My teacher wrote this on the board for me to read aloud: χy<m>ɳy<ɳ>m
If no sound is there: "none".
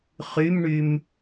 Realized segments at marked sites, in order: m, none

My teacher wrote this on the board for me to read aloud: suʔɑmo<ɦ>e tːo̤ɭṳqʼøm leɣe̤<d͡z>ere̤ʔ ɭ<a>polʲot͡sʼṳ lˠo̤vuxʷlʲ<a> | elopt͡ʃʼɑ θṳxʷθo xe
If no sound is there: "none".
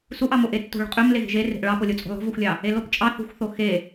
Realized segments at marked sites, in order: ʔ, ʒ, ɑ, ɑ

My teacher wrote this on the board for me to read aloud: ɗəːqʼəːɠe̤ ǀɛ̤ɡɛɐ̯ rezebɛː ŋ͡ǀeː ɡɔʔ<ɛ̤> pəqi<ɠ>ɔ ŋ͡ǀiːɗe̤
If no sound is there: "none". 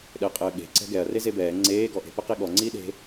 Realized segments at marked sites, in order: e̤, ɠ

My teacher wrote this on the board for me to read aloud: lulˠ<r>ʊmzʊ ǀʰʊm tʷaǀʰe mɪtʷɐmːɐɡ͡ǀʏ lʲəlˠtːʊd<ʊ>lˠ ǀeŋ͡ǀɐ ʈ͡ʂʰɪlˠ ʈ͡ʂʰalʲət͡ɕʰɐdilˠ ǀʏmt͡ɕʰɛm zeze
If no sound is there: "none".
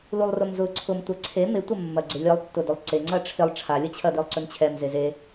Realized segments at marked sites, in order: r, ʊ

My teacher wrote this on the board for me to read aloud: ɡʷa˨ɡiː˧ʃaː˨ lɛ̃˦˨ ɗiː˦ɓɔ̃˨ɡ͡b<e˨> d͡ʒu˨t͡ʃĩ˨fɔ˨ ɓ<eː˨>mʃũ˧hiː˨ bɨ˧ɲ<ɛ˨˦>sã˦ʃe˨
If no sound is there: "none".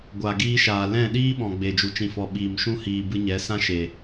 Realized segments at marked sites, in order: e˨, iː˨, ɛ˨˦

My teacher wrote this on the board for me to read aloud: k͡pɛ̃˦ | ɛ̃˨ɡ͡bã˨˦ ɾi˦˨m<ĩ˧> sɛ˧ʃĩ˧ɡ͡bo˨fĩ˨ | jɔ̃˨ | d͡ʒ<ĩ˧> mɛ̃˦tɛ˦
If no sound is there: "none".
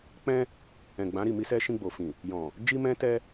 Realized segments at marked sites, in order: i˧, i˧

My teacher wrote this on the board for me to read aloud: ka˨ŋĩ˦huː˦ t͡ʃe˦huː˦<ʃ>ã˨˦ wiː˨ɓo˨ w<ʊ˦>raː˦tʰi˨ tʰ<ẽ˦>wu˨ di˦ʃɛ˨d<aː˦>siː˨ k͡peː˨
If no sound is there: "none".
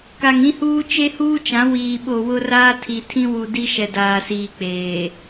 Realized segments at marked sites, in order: t͡ʃ, ʊ˦, ĩ˦, aː˨

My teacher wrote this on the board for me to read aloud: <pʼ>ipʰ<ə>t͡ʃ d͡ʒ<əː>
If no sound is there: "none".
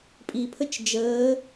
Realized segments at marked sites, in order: pʼ, ə, əː

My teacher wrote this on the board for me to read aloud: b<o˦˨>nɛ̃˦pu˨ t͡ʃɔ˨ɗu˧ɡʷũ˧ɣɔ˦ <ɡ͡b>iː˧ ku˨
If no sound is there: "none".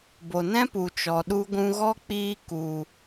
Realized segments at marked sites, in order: o˨, k͡p

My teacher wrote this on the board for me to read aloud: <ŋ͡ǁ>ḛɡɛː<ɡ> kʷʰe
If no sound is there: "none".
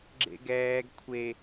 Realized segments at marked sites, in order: ɡ͡ǁ, ɡ

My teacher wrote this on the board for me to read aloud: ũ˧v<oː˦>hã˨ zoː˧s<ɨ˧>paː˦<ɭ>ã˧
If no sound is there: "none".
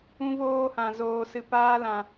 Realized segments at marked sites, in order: oː˧, ɨ˧, l

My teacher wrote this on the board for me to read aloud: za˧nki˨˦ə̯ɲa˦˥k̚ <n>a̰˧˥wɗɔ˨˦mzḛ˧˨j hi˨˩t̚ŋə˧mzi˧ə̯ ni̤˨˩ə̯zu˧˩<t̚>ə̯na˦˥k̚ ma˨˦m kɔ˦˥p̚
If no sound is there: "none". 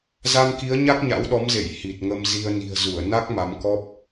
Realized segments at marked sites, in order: ɲ, none

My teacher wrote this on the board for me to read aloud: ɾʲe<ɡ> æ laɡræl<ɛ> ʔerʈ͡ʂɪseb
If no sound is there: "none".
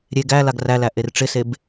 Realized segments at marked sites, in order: ɡ, æ

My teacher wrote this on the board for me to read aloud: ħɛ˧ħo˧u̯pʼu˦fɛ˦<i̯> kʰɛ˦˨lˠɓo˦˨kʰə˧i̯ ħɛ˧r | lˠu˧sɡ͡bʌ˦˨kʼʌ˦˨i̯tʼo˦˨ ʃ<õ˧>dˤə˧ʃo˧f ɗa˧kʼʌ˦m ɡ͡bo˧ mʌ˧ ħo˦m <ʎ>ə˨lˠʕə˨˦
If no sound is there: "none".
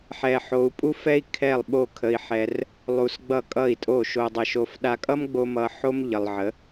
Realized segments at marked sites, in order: i̯, o˧, ʎ

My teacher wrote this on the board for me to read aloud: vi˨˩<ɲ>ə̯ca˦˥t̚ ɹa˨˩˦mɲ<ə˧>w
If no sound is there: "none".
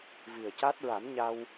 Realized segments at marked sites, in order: none, a˧

